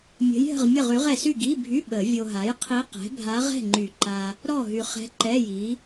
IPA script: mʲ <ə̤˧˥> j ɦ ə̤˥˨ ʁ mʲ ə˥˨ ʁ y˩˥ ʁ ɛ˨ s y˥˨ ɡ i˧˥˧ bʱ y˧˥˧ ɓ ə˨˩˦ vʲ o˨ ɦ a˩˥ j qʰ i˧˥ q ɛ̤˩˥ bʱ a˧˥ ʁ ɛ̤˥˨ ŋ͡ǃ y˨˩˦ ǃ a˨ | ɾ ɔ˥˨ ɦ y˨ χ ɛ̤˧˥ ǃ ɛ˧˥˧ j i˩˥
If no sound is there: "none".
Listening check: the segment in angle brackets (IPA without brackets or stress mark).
ə̤˧˥